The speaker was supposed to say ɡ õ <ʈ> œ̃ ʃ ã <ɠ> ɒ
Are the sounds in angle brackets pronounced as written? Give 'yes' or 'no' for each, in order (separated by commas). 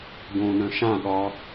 no, yes